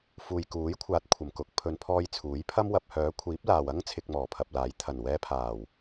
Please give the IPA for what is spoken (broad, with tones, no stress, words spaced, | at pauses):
fuː˨jkuː˨˥jkʷʰaː˨˥t̚ kʷʰɐ˨˩mkʊ˨˥k̚ pʰɵ˨˧npʰɔː˧j t͡sʰuː˨˥jpʰɐ˥mwɐ˧p̚ hœː˨˥kʷʰiː˨˥p̚laː˨wɐ˥ŋ t͡sʰɪ˧k̚mɔː˨˩pʰɐ˨p̚laː˨˥j t̪ʰɐ˨˩nwɛː˧pʰaː˨˩w